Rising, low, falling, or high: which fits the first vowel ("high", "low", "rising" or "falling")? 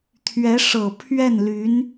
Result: rising